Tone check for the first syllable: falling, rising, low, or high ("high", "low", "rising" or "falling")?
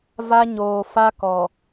high